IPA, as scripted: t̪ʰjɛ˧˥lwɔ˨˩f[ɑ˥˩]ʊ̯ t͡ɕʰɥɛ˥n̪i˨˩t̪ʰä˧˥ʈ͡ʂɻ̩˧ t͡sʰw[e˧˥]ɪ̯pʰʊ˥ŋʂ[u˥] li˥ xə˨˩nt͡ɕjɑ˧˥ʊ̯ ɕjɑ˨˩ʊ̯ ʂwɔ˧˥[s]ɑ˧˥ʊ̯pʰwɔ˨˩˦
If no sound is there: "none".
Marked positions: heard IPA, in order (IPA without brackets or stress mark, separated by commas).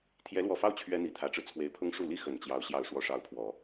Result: ɑ˥˩, e˧˥, u˥˩, ʂ